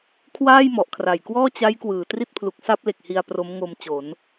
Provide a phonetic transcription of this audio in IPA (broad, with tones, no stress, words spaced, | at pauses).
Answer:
kʰwaː˥˩jmɔ˨˩ʔkʰra˨˩j kwɔː˥˩t͡ɕa˦˥jkwɯː˩˦ tri˥˩t̚pʰlu˨˩k̚sa˥˩p̚ le˨˩k̚hi˧a̯ pro˦˥m ŋo˧mt͡ɕo˩˦n